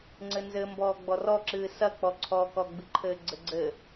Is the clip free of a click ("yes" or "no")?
no